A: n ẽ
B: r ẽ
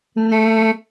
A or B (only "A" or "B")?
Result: A